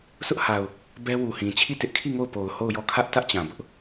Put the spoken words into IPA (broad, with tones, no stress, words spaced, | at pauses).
sʰʊ˦ʔha˨ʊ̯ | bɛ˦wu˨hĩ˨ t͡ɕʰi˦˨tɪ˦ʔ kʰi˦˨ ŋo˦˨ʊ̯po˨ʊ̯ho˦˨ʊ̯jɔ˦˨ kʰä˦ʔtä˦ʔ t͡ɕã˨bʊ˦ʔ